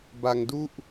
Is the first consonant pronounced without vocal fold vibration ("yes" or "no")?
no